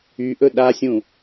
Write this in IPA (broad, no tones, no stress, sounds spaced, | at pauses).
y ʔ ɵ ɗ a sʲ ũ